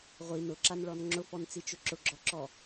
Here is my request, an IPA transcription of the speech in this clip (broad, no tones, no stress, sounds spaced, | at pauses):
ʁʷ i n ʊ ǁ a n ɭ ɔ n ŋ͡ǁ ʊ f ɔ n t͡s i t͡ʃ ʊ ǁ ʊ ɡ͡ǁ ɔ ǁ ɔ